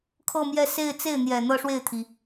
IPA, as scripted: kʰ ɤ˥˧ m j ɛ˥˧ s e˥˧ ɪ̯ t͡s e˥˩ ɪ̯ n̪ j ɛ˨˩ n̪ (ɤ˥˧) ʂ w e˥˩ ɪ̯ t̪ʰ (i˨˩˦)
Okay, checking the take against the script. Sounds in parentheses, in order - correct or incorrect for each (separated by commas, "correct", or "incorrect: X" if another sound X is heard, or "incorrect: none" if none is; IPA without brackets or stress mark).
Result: correct, incorrect: i˩